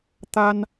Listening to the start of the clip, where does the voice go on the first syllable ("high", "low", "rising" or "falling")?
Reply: high